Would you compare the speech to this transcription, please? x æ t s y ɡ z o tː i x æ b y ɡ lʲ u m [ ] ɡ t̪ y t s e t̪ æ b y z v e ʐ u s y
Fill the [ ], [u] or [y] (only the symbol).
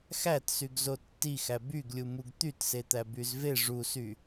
u